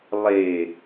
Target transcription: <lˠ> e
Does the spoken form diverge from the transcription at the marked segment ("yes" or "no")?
no